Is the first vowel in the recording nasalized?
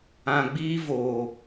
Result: yes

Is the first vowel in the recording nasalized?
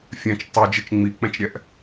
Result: yes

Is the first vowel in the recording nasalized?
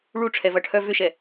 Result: no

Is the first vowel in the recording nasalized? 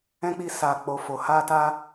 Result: yes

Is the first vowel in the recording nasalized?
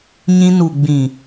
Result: yes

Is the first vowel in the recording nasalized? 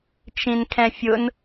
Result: yes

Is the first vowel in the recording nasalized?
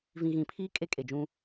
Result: yes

